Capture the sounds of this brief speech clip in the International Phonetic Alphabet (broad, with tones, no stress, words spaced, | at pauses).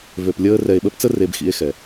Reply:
vø˨plʲəː˧ rɛ˨e̯ɓə˧pt͡sə˦ re˧bxḭ˧e̯ xɛ˨